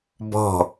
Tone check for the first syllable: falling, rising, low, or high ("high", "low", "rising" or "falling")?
falling